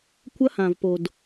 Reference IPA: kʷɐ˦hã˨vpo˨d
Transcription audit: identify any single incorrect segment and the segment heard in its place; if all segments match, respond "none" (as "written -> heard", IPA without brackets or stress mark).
none